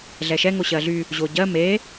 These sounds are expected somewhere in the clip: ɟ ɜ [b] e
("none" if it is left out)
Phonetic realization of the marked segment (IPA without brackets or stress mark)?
m